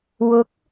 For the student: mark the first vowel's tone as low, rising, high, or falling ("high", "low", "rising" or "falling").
rising